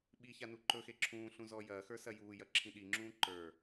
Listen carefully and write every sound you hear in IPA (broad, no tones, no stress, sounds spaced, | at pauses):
ɓ i ç a n u ǃ ɵ x e ǁʰ ũː ɬ ũ z ɔ j ɐː x ə˞ s ɐ j uː j ɐ ǁʰ ĩ ɗ i ŋ͡ǁ ũː ǃ ə˞